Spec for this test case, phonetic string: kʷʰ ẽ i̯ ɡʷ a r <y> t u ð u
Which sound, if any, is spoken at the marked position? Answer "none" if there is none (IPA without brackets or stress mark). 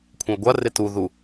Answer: e